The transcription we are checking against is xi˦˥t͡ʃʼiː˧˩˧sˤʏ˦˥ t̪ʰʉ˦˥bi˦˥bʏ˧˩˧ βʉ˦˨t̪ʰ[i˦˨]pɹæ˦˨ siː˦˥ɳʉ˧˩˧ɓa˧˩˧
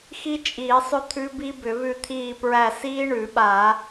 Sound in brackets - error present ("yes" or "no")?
yes